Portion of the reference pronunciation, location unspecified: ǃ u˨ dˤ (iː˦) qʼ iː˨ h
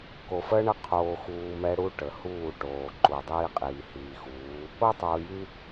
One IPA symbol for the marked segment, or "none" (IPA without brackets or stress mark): iː˦